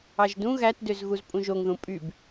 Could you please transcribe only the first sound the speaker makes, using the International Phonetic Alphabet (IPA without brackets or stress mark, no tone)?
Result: ɑ